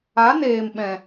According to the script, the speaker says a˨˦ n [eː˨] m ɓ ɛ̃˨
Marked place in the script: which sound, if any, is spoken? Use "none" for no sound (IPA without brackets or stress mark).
eː˨